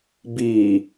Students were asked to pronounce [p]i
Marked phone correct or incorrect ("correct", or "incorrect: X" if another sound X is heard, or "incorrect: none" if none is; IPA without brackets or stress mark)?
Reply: incorrect: b